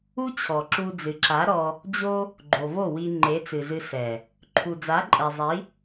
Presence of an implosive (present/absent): absent